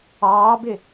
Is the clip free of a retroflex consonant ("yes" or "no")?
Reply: yes